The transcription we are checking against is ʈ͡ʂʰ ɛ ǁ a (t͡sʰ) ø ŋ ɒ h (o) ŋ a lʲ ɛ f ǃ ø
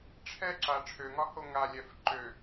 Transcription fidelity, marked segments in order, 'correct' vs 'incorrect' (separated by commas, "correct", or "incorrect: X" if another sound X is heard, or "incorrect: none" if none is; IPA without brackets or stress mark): incorrect: ʈ͡ʂʰ, correct